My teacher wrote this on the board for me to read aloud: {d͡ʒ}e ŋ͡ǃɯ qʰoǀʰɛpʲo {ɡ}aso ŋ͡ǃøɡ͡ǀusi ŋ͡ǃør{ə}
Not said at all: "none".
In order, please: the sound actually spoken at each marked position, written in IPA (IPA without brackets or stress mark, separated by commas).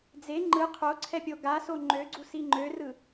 d͡z, ɡ, ɯ